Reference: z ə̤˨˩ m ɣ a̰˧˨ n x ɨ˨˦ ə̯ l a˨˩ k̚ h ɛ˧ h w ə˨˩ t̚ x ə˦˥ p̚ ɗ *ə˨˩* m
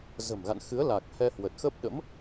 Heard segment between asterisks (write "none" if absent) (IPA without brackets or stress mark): ə̰˧˥